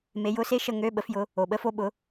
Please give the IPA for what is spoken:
me˨˦jʊ˧˥˧se˥ ʃə˥˧ŋø˧˥˧ɓə˨˦fjʊ˨˦ | o˨˩ɓə˧˥˧fo˥˧ɓʊ˨˦

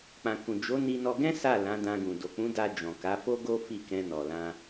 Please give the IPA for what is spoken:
k͡pã˨kũ˨ d͡ʒo˨˦ ni˧nɔ˧ɡɛ̃˦ sa˦˨ lã˨˦dã˧ɡũ˨ do˨k͡pũ˨˦da˧ d͡ʒɔ̃˨ka˨˦fo˦ɡo˦ fi˦˨kɛ̃˧nɔ˨ lã˧

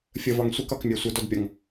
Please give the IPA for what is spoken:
fʲəvɒŋ sʷikɒkmʲæ sʷədɔdpʲɒŋ

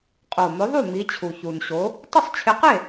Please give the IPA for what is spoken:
qʼo˨˩mʊ˨˥ðˤu˥˩ mi˨˥t͡ɕʰu˨˩çu˨˩nɕo˨˥ | tˤʊ˥˩sˤt͡ɕʰɪ˨˥qe˥˩

